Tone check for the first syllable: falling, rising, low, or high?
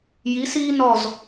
rising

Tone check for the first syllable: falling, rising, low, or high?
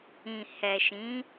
low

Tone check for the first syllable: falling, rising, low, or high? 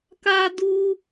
high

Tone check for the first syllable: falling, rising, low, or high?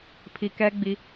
low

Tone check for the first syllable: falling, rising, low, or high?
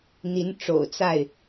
rising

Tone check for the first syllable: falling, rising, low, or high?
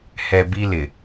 low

